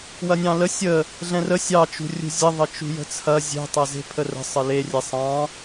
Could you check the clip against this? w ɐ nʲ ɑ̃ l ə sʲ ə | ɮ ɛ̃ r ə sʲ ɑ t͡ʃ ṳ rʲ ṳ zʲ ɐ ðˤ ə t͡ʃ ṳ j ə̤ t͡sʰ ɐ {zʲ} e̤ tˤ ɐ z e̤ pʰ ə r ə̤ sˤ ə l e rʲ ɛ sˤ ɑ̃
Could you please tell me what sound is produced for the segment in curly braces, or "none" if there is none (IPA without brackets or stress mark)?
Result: zʲ